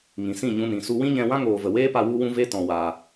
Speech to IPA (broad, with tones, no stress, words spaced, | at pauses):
ŋĩ˨sĩ˦˨ɲũ˧nĩ˨ su˧wĩ˦ɲɛ̃˧wã˦ ŋoː˨və˨weː˦pa˧ wu˦wũ˦ve˦ tɔ̃˧waː˧